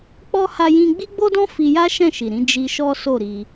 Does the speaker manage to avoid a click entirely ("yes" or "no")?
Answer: yes